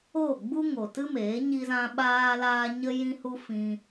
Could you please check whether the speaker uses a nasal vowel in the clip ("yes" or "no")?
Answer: yes